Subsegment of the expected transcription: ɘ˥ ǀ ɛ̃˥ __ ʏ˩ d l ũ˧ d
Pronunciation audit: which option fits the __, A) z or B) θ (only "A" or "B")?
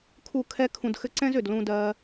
A